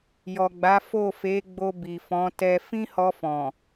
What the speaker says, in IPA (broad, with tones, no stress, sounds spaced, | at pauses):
j ɔ˨ ɡ͡b a˨˦ f o˦˨ f e˨˦ ɡ͡b o˧ b i˨ f ɔ̃˨˦ t ɛ˦ f ĩ˦ h ɔ˧ f ɔ̃˨